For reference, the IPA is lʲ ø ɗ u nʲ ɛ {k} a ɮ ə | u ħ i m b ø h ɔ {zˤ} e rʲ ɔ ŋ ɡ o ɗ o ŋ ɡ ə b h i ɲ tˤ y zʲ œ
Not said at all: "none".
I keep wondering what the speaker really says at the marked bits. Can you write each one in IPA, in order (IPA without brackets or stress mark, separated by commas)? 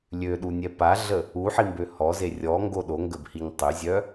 p, z